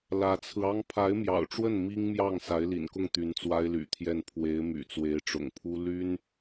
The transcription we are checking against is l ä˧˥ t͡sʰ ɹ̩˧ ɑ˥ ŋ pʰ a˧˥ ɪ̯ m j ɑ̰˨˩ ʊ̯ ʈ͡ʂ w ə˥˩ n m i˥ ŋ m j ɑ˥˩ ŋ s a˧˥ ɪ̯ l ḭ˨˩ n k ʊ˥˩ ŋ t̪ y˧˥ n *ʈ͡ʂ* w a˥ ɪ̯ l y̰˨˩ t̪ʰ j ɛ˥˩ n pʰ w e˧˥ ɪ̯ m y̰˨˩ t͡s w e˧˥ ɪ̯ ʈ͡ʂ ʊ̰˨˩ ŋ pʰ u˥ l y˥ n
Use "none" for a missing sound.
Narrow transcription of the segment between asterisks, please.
t͡s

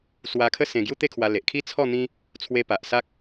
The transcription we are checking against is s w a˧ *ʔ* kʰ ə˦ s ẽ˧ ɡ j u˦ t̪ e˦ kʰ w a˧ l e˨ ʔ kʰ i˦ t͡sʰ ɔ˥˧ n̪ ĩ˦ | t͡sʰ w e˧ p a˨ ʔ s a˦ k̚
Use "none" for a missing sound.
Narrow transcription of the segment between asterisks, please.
none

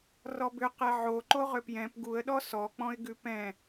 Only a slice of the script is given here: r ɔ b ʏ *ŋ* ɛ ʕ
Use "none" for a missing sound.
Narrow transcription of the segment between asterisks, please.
q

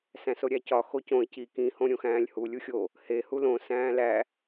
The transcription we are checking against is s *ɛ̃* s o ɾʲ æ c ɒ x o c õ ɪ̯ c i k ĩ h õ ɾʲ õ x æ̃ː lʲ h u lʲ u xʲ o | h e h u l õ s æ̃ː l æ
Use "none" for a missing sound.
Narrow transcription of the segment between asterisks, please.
æ̃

